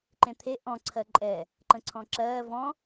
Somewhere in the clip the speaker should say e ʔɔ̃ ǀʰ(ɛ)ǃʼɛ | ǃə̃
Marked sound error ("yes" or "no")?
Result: yes